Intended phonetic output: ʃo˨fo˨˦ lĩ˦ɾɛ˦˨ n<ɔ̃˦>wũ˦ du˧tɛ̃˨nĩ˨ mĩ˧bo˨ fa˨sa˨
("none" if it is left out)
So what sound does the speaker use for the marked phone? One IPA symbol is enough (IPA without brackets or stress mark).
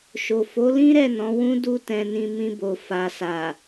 ɔ̃˨˦